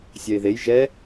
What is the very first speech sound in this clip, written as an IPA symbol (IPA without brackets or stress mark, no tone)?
sʲ